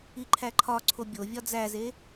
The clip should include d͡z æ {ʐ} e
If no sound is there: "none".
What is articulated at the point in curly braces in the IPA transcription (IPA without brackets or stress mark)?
z